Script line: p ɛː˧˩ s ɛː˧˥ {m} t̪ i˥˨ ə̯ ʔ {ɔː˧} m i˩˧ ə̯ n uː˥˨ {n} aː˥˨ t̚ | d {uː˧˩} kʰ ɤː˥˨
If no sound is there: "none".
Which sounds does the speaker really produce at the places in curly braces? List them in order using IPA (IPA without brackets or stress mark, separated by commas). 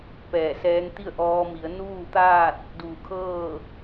ŋ, ɔː˧, t̪, uː˧˩